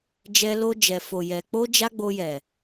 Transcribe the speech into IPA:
d͡ʒɛ˧lo˧ d͡ʒɛ˨fo˨jɛ˨ k͡po˧ d͡ʒa˦ɡ͡bo˧jɛ˨

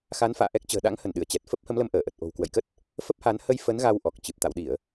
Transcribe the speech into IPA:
xa˨˦nfa̰ː˧˨ʔɛ˦˥k̚t͡ɕə̤ː˨˩ ɗa̰˧˥ŋhə˧˩n ɗɨ˧˩ə̯t͡ɕɛ˨˩t̚ fə˦˥p̚hə˨˦mlə˧m ʔəː˧˩ʔə˨˩t̚ ʔo̤˨˩wkwə̰˧˨jkə˦˥t̚ | fə˦˥p̚ha˨˦n hə˧j fə˨˦n ɣa˧wʔɔ˨˩k̚t͡ɕɨ˨˩p̚ t̪a̰˧˨wɗi˧˩˨ə̯

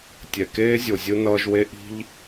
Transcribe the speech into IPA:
tʲɛ˨keː˦zʲo˨zʲɯ˦ nʌː˦ʒwe˦ ʔi̤˦ʎ

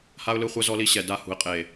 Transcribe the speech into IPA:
ha˦ʊ̯ lɯ˦χʷɛ˦zɔ˦li˦ ɕɛ˨da˦˨hṳ˨ɪ̯ qʼe˨

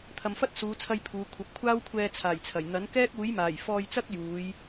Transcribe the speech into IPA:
t̪ʰɐ˨mfɐ˥t̚suː˨˧t͡sʰɐ˧j pʰuː˨˧kʷʰɐ˨˥p̚ kʷʰaː˥wkʷʰɛː˧ t͡sʰaː˨˩jt͡sʰɐ˨˩j n̪ɐ˨˥nkɛː˥k̚ uː˨˥jmaː˨˩j fɔː˧jt͡sɐ˥k̚ juː˨˧j

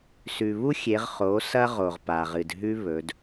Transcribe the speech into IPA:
sʉ˩βu˥xʲe˩˧ʁ χo˩˧sɐ˧ ʁo˩ʁpa˩ʁɨ˩dɦʉ˥ βɵ˩˧d

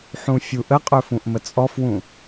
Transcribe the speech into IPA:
ħũfʲuʔəqʼɵ fũʔmət͡sʼɔfwũ

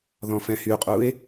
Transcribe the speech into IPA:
ðɔ̃fɛ̃hyqʼue̯

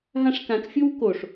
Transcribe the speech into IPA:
ɦãʂkãkfʲow koʂ

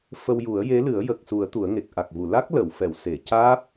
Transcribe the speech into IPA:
fə˧wju˨˩˦ə̯je˧˥lɨ˨˩˦ə̯ jə˨˩k̚su˨˩˦ə̯ t̪u˨˩˦ə̯ŋe˨˩k̚ ʔa˨˩k̚vu˨˩˨ la˦˥k̚ lə˨˩˨wfɛ˨˩˨wse˨˩˨ caː˦˥p̚

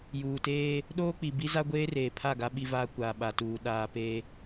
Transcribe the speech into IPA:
juː˨teː˦ | ɗoː˦k͡pi˨bi˦za˦ ɡʷeː˦reː˨pʰa˦˨ɡa˦ ɓi˦vaː˦ kʷaː˨ɓa˨tuː˨ ɗaː˨peː˦

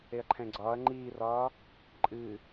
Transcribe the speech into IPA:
eɐ̯ǃʰɛ̃ɡ͡ǀɒːɐ̯ ŋ͡ǃiːrɒː | ǃʼɨ

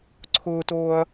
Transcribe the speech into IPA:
ǀʰʊːtoːɐ̯

